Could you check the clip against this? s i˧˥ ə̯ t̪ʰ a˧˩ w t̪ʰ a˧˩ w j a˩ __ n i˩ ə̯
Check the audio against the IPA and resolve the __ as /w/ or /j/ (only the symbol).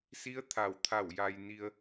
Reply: j